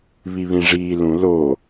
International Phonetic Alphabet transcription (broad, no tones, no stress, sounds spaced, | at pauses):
β i β ĩ ʐ iː l ũ l o